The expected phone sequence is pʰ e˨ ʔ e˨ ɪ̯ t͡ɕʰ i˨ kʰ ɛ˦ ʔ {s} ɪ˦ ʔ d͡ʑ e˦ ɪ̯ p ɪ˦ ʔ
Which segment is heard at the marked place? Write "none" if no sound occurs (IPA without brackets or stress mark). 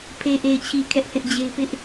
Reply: θ